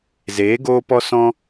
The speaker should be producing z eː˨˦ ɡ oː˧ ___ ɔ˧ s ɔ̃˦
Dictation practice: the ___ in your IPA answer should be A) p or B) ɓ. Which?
A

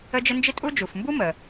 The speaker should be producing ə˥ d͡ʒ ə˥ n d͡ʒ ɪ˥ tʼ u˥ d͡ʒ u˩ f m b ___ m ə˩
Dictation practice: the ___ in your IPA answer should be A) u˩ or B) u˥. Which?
B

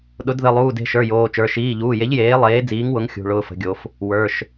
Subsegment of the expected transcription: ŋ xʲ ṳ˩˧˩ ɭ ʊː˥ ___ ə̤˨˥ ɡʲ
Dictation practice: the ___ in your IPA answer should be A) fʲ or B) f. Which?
B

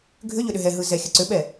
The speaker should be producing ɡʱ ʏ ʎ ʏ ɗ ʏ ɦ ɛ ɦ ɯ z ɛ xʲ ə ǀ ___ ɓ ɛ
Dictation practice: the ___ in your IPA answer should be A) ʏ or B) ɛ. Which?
A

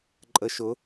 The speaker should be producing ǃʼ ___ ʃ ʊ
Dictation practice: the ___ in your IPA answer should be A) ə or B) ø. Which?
A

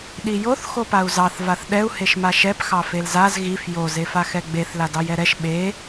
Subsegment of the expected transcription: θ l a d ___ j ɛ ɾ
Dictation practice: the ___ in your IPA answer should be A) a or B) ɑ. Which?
B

